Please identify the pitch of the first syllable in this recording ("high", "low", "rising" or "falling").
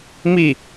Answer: falling